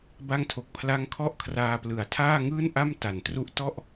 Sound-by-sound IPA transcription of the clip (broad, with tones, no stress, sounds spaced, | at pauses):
b a˦˥ ŋ tʰ o˨˩ k̚ pʰ l a˦˥ ŋ kʰ ɔ˥˩ ʔ kʰ r aː˧ p l ɯ˩˦ a̯ tʰ aː˥˩ ŋ ɯː˥˩ n ʔ a˥˩ m t a˨˩ n t r u˦˥ ʔ t ɔ˥˩ ʔ